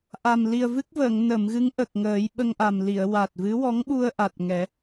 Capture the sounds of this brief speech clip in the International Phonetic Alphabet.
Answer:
ʔ a˨˩ m l i˨˩ ə̯ v ɨ˦˥ k̚ v əː˨˩˨ ŋ n ə˨˩˨ m ɣ ɨ˧˥ ŋ ʔ ə˨˩ k̚ ŋ əː˨˩˦ j ɓ ə˧ ŋ ʔ a˨˩ m l i˨˩˨ ə̯ w a˨˩ t̚ v ɨ˧˥ w ɔ˧˥ ŋ ɓ u˧ ə̯ ʔ a˨˩ t̚ ŋ ɛ˨˩˦

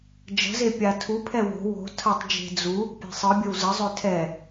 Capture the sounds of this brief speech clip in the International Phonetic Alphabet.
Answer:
d͡ʒ ə̤ z e pʲ a tʰ u pʰ ɛ w o̤ w o̤ tʰ ɐ tˤ d͡ʒ e̤ d͡z u | pʲ e̤ sˤ ɯ bʲ ə w z ə zˤ ø tʰ ɛ

